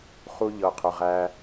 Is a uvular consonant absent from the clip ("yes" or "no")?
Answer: no